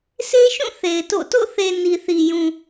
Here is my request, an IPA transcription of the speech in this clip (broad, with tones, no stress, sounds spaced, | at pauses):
s e˦ ʃ ũ˦˨ θ e˨ ɪ̯ t o̰˦˨ t o̰˦˨ θ e˨ n i˨ θ i˨ j ũ˨